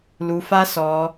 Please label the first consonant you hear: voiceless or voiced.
voiced